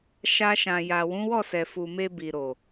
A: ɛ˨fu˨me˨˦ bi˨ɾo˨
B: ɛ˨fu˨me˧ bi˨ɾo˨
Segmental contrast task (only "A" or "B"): B